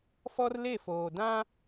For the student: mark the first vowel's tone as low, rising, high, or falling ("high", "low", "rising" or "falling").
high